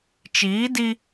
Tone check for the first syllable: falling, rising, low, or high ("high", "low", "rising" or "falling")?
rising